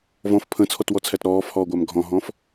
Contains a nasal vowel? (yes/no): yes